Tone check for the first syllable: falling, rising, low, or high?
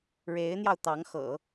rising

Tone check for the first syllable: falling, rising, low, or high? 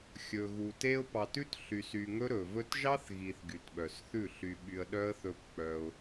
low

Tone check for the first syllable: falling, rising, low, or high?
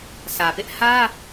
low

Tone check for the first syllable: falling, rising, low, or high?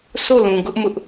falling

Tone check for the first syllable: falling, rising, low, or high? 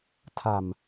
low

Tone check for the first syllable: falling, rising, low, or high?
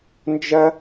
high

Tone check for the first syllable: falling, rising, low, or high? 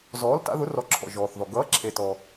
rising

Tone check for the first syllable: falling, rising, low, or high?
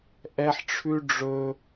high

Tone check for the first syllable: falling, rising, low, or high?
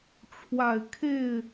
low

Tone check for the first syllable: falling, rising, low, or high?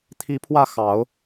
rising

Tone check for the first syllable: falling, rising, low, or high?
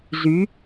rising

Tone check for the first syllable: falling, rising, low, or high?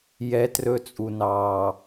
high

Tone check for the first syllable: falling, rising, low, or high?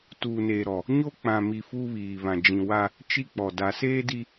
low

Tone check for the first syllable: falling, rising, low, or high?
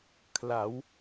rising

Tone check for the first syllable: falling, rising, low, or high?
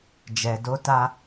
low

